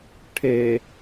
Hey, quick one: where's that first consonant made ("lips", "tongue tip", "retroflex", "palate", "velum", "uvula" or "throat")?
retroflex